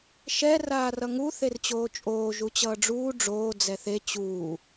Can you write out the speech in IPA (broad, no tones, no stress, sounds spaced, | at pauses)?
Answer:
ʃ ɛ r aː r ʌ ŋ u θ e r t͡ɕ oː t͡ʃʼ oː ʒ u t͡ɕ ʌː ɖ͡ʐ uː ɖ͡ʐ oː d͡z ɛ θ e t͡ɕ uː